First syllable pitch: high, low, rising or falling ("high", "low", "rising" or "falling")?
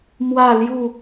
falling